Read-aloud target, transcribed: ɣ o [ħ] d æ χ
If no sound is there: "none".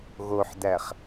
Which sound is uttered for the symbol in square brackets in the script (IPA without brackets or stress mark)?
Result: ħ